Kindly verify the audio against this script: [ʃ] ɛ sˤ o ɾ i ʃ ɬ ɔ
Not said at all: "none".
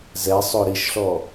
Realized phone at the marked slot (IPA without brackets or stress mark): z